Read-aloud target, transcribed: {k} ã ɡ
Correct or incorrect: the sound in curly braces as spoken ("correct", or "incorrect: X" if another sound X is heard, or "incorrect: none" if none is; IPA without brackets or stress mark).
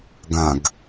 incorrect: ɡ